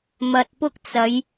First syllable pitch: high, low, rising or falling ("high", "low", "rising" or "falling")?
low